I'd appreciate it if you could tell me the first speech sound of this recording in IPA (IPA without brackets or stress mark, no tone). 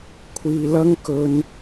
kʷʰ